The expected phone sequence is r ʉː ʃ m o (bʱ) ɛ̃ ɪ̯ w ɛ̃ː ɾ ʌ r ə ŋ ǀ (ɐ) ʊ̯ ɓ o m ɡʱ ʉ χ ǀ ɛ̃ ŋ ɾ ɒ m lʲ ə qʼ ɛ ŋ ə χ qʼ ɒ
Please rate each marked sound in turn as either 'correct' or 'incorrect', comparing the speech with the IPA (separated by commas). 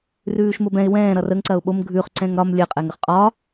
incorrect, correct